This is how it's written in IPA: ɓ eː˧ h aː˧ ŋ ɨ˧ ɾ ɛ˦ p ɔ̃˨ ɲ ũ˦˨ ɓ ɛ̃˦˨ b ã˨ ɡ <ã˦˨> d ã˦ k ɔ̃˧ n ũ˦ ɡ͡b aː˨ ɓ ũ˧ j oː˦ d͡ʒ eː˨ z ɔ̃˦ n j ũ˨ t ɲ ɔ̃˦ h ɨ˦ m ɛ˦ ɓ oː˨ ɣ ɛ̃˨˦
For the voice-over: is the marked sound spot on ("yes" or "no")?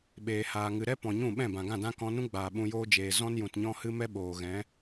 yes